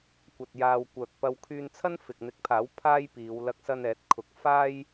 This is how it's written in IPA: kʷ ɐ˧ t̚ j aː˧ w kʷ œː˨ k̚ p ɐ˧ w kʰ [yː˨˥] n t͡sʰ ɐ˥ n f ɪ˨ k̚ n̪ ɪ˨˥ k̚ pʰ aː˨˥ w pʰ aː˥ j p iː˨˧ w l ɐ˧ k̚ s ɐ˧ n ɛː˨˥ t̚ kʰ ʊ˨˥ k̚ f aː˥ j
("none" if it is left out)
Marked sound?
yː˧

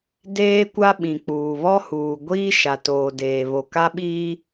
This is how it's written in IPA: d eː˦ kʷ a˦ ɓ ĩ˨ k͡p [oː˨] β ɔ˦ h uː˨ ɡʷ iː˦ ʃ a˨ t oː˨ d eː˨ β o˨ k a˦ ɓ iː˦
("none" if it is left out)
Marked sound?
uː˨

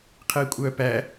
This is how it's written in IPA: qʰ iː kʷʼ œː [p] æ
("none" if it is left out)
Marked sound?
p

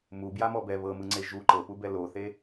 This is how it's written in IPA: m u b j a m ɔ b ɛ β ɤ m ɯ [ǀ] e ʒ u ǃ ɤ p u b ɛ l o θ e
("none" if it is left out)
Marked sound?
ŋ͡ǀ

